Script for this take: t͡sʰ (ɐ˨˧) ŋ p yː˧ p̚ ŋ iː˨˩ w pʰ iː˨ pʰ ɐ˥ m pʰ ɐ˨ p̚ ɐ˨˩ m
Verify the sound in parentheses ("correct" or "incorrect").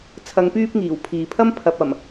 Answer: correct